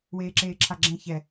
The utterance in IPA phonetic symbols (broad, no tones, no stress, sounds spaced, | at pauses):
w eː ǁ eː ǁʰ a ɡ͡ǁ ɛ̃ ç ɛ